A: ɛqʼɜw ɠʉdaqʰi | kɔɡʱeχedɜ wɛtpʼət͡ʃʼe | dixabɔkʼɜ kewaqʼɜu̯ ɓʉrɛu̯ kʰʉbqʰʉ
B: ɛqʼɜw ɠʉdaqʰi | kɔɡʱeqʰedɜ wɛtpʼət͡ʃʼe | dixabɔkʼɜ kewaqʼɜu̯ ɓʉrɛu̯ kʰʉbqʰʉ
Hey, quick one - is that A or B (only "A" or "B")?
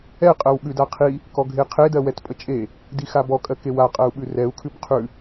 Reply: B